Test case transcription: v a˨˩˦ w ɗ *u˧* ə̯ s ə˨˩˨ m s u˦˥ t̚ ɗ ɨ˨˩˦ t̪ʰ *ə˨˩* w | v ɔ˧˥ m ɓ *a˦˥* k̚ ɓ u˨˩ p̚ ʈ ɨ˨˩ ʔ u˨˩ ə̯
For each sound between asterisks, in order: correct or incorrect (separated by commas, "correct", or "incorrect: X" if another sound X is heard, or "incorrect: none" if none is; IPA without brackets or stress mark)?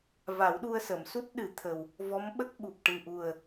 correct, correct, incorrect: ə˦˥